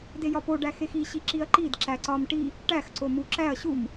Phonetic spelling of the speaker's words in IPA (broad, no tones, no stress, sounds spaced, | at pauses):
d e j ɒ p o ɖ æ x e x i ɕ i ǁ i ɐ̯ ǃ i d ǁ æ ǀ ɒ m ʈ i | ʈ æ x ǀ o m u ǁ æ ɐ̯ ɕ u m